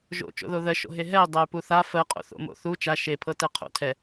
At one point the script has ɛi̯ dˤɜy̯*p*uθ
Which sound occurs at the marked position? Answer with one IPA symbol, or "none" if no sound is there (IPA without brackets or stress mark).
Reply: p